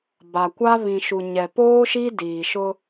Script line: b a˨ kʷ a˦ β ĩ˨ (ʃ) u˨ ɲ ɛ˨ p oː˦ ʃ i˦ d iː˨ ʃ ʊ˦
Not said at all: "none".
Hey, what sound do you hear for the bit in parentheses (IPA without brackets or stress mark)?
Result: ʃ